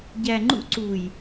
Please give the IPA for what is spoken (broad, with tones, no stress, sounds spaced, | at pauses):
ɟ æ˨ ŋ͡ǃ ṵ˦ ǀ u˨ j